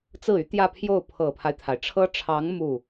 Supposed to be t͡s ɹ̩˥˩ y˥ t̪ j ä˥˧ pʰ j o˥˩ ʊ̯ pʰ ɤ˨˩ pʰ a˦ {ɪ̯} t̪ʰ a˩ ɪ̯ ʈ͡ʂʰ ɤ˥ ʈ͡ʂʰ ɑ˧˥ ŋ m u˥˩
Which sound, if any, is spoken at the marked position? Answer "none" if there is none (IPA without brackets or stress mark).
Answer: ɪ̯